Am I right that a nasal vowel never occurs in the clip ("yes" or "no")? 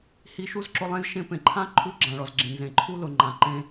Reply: no